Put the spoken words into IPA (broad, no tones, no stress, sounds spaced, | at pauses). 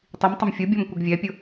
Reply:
tˤ i m tˤ ɪ m fʲ ʊ bʲ ɔ m kʷ ɪ ɡ vʲ ɛ pʲ ʊ